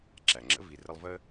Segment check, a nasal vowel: absent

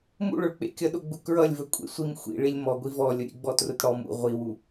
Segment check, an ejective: present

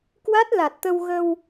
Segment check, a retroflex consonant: absent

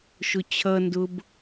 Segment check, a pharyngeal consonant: absent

